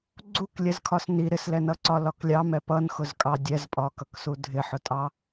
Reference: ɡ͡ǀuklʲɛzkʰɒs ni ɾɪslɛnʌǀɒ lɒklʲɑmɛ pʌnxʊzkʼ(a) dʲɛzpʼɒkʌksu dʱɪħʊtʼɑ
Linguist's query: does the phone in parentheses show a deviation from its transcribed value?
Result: yes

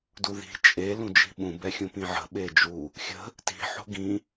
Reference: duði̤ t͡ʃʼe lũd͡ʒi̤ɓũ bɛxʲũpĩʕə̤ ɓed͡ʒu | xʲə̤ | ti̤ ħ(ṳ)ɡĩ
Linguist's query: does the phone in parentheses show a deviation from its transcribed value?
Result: yes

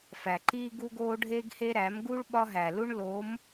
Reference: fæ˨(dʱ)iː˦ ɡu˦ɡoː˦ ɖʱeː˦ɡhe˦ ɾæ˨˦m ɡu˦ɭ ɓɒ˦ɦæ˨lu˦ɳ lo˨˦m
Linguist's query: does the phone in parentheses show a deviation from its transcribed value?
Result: yes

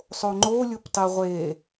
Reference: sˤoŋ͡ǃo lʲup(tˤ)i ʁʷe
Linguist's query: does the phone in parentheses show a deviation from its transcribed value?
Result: no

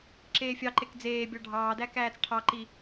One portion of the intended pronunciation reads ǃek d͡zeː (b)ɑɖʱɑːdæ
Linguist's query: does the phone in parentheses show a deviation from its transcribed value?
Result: yes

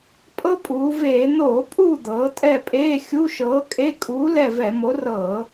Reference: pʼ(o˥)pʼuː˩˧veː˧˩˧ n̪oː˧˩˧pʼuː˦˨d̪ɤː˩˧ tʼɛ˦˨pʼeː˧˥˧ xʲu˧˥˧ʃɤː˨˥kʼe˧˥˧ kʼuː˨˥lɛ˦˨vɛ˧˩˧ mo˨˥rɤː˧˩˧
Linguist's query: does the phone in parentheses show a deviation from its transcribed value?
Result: yes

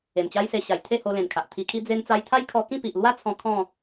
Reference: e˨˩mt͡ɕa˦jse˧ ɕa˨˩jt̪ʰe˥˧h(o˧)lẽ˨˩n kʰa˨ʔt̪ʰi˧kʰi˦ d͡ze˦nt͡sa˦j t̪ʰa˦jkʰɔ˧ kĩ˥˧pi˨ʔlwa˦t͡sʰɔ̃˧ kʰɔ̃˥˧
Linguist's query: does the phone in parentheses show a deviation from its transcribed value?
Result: no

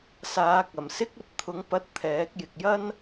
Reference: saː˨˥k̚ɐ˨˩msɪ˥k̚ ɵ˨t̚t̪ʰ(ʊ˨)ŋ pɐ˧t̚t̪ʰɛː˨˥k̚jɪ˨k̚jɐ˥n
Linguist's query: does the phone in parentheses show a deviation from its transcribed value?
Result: yes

